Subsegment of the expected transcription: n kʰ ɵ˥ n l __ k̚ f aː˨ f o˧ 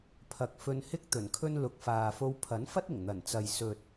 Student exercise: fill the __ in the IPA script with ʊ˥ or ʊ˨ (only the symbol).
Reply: ʊ˨